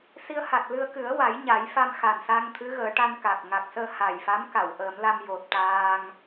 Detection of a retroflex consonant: present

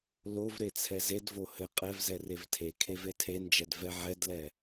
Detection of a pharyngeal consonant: present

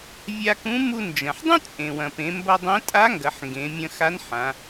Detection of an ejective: present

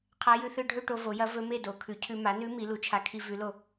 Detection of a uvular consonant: present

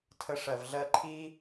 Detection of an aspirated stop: present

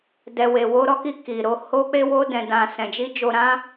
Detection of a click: absent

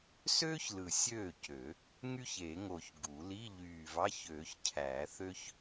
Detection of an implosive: absent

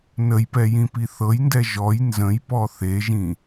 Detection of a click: absent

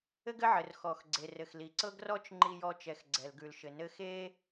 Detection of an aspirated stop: absent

